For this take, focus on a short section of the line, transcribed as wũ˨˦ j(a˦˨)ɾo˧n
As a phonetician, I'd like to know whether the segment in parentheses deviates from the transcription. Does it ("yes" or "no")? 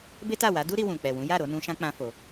no